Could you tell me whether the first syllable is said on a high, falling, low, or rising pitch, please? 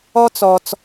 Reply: high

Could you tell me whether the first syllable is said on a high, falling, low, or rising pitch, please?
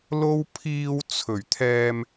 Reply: high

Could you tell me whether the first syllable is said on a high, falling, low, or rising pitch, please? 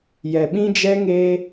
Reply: low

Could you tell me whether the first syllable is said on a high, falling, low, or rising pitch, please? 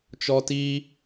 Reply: high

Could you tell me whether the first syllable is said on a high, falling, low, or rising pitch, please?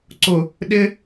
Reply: low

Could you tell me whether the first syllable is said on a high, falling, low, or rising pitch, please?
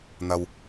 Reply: low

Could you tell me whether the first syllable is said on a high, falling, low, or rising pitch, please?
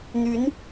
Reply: rising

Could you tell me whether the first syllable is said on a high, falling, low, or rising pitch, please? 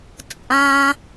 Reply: low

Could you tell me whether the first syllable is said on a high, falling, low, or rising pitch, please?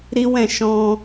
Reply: high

